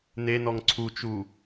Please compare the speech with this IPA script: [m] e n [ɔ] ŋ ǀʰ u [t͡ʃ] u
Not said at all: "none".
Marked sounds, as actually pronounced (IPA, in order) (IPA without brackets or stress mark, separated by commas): n, ɔ, t͡ʃ